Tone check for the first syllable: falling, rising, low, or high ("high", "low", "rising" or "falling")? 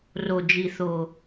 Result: low